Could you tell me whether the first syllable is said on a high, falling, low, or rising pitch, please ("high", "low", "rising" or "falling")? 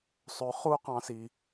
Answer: low